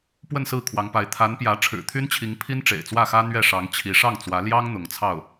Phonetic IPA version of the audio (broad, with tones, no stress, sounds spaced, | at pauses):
p w ə˥˧ n s ɹ̩˥˩ kʰ w ɑ˧˥ ŋ p a˧˥ ɪ̯ t̪ʰ a˧˥ n p j ä˧˥ ʈ͡ʂʰ ɻ̩˨˩ t̪ʰ y˥ n t͡ɕʰ i˧˥ ŋ pʰ i˥ n ʈ͡ʂ ḛ˨˩ ɪ̯ t͡s w ä˥˩ x ä˥ n̪ ɥ ɛ˥˩ ʂ ɑ˧˥ ŋ t͡ɕʰ i˧˥ ʂ ɑ˥˩ ŋ t͡s w ä˧˥ l j ɑ˥ ŋ n̪ ʊ˧˥ ŋ t͡sʰ ɑ˥˩ ʊ̯